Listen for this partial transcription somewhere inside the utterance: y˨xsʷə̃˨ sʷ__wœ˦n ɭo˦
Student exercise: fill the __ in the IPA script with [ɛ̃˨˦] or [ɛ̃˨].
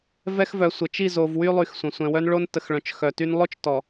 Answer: ɛ̃˨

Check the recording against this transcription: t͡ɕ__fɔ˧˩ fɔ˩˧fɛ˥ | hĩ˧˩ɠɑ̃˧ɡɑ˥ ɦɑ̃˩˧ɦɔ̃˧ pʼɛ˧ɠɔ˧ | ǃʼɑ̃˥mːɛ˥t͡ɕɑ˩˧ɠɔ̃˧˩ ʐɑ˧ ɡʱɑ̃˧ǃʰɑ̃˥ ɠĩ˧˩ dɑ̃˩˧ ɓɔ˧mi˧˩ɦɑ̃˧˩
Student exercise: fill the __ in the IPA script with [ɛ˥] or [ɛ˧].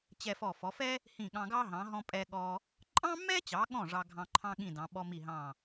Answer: ɛ˧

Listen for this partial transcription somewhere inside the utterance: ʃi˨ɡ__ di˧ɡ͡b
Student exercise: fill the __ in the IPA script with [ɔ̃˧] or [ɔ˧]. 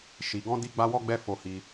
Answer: ɔ̃˧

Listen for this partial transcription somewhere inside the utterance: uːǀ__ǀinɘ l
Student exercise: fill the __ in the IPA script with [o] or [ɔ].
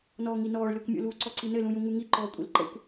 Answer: ɔ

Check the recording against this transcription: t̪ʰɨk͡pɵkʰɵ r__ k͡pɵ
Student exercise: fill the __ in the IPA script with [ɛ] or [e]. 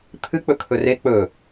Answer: e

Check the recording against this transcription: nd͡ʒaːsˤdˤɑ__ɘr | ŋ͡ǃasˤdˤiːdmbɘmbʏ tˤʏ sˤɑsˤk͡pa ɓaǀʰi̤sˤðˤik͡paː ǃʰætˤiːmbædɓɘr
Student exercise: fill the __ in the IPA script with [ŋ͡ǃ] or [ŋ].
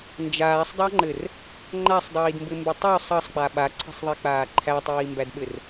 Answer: ŋ͡ǃ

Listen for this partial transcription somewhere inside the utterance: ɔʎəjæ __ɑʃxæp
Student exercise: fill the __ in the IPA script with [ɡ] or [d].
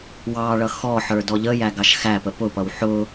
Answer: ɡ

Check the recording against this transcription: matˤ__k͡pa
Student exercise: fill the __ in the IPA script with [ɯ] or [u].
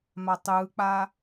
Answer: ɯ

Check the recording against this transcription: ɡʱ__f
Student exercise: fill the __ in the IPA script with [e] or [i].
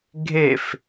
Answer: e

